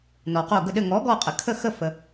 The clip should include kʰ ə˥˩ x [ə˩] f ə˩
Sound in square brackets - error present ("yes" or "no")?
yes